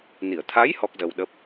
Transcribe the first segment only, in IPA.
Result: n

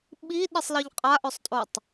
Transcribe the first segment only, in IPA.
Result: ɓ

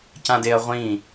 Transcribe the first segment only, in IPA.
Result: c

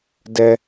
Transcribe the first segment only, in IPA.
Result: d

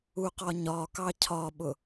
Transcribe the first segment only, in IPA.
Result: u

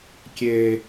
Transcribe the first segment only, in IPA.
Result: kʲ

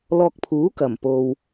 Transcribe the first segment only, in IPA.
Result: l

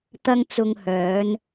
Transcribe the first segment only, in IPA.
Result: t̪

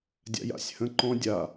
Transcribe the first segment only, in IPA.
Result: dʲ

